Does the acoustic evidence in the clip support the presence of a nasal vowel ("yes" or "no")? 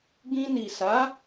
yes